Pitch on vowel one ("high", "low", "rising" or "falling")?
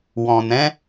low